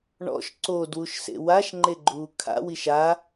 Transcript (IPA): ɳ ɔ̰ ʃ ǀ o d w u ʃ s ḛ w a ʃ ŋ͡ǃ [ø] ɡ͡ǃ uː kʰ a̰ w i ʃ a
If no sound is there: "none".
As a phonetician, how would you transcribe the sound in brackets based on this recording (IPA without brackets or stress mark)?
e